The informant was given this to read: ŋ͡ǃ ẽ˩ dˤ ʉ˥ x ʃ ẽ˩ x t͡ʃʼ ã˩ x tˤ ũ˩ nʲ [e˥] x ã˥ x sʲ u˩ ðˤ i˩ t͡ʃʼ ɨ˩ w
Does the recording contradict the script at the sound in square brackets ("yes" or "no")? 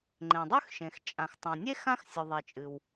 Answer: no